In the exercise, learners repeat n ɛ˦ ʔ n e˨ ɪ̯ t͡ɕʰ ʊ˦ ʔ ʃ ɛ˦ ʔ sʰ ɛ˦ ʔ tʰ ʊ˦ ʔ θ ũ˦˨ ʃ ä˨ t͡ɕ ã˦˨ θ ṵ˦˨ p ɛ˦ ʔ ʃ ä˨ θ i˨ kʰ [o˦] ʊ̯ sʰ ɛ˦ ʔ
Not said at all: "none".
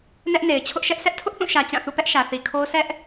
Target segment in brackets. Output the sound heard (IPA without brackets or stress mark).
o˦